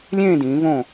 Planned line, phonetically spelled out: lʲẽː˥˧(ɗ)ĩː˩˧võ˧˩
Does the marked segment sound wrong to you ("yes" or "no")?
yes